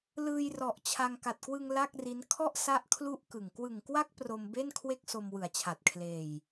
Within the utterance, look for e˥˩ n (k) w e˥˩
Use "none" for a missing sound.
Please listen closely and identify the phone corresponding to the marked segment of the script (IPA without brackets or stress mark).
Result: kʰ